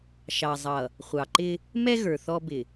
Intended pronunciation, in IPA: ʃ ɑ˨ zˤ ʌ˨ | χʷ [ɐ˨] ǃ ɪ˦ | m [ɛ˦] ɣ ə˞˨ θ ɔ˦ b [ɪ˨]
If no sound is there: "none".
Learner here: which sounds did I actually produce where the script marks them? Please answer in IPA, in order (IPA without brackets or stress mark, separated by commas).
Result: ɑ˨, ɛ˦, ɪ˨